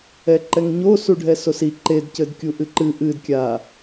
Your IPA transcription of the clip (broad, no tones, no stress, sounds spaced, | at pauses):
ɛ ǃ ɛ ŋ ɲ o s u ɖʱ ɛ s o s i ǃ e d c ɘ d kʲ u ʔ ɨ ǃ ɨ ʔ ɨ d kʲ a